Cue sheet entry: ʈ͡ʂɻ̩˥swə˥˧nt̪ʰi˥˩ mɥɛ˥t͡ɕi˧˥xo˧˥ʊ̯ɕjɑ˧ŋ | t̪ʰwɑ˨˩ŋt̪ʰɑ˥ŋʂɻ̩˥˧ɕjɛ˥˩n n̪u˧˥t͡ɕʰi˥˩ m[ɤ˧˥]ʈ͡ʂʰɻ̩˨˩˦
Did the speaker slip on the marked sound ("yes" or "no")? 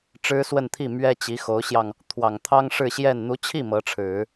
no